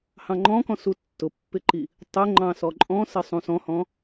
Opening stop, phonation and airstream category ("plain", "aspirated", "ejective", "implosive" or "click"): click